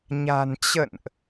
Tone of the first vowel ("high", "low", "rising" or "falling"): low